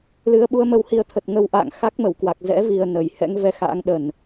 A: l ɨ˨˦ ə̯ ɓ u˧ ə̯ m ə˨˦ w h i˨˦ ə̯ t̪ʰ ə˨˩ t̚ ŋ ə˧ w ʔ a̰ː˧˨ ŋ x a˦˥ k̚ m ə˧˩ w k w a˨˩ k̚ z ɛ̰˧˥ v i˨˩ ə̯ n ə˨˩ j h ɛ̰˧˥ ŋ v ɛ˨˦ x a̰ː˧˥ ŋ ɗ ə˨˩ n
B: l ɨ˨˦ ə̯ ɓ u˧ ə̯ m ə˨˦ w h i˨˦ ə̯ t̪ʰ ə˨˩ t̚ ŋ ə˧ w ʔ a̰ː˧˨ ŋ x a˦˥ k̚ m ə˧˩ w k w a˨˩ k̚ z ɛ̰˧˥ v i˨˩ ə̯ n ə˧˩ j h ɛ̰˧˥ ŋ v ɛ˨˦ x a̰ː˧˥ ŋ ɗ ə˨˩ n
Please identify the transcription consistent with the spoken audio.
B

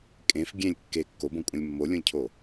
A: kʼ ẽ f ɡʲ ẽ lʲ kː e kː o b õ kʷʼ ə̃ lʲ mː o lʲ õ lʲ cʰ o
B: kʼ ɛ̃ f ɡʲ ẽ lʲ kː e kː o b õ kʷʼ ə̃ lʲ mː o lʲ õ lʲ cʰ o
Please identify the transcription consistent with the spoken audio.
A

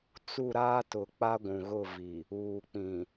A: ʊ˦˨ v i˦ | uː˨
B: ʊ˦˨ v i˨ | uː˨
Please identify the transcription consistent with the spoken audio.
B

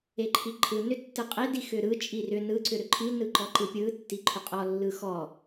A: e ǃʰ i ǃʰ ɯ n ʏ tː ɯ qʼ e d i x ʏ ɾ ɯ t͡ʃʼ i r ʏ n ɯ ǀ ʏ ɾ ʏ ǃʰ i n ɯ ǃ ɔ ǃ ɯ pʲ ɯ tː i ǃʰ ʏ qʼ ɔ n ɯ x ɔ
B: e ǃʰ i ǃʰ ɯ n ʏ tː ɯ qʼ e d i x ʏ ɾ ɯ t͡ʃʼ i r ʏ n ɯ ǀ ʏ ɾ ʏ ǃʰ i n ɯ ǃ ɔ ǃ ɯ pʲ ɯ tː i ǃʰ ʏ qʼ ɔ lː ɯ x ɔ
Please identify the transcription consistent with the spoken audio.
B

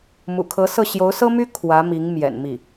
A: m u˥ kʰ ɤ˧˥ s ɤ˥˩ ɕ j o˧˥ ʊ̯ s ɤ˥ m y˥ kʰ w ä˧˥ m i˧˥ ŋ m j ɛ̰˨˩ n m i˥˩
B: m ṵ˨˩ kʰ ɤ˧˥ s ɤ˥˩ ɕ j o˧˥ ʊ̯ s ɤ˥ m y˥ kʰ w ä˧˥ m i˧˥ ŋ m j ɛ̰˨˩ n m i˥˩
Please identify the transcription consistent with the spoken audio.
B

